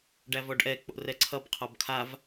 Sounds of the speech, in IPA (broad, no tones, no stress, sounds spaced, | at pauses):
ɖ æ v ɔ ɖ ʔ ɛ k͡p o̰ r ɛ ǀʰ ʌ b qʰ ɔ b kʰ a v